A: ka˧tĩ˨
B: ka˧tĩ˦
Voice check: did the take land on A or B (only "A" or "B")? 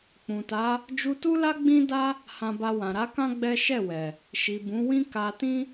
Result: B